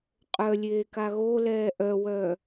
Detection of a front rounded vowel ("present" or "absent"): present